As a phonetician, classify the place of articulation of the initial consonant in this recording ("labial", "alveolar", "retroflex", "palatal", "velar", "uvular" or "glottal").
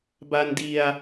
labial